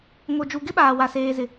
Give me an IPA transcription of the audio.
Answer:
ŋo˨d͡ʒu˨ ɡɪ˦ɓaː˨wa˨ seː˨zɪ˨

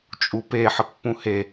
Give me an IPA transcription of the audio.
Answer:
t͡ʃʼupe ħəpːũhe

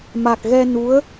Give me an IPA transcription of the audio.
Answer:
ma˨˩k̚ɣɛ˧ nu˧˥ə̯

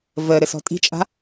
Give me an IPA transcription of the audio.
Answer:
və ɾɘsɔ̤tʼi̤t͡ʃʼa̤

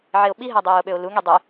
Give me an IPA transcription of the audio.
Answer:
ʕeo̯ɓiɦæ dˤiːo̯ɓøo̯luŋi dˤe

